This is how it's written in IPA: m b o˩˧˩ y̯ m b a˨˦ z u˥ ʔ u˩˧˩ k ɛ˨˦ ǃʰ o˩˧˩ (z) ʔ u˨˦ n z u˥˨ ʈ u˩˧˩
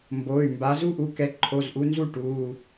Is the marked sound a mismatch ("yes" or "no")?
no